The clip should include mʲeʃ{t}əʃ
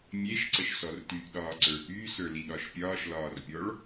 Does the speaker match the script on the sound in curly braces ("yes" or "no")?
no